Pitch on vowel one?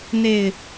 low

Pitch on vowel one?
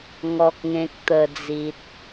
low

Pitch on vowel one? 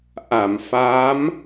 low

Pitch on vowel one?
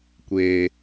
low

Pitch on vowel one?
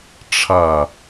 falling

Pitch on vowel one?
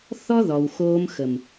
high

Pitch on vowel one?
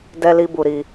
high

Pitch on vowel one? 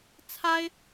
high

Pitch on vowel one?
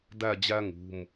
falling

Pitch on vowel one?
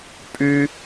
high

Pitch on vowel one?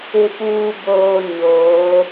low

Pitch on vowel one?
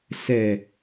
low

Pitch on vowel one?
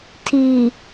low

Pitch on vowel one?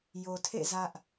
low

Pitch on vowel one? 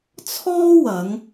high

